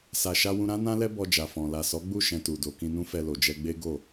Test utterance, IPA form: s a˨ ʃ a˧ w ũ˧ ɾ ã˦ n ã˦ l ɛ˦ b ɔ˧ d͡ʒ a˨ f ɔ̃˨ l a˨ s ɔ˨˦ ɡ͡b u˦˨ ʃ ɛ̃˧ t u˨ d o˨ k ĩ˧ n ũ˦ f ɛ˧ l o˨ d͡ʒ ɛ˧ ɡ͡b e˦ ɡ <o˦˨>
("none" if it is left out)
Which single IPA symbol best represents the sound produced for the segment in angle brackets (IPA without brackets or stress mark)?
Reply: o˦˨